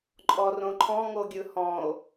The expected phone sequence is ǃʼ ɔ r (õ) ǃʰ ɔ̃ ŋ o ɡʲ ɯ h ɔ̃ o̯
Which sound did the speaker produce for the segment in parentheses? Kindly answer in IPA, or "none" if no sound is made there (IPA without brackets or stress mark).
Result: õ